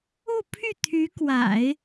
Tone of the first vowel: falling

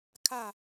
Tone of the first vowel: falling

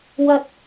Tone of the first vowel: high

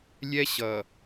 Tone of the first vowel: high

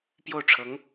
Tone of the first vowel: falling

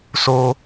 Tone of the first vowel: high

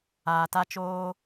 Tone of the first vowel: low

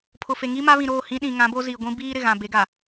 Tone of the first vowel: low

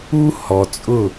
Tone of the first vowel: high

